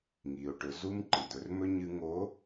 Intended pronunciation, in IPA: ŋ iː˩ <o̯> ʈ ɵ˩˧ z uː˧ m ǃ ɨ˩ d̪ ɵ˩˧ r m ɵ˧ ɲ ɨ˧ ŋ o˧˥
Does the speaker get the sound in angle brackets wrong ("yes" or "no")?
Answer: no